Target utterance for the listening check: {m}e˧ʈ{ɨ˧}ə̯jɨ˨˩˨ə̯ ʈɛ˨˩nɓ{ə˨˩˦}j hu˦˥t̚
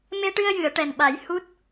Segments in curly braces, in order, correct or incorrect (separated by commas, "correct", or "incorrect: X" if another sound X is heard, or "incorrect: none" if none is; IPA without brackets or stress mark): correct, correct, incorrect: a˨˩˦